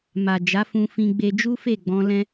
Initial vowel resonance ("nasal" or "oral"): oral